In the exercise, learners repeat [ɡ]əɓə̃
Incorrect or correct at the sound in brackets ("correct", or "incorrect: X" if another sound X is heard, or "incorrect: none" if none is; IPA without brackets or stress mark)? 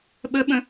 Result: incorrect: ɓ